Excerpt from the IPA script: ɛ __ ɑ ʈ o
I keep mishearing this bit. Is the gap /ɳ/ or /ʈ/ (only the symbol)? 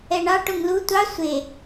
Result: ɳ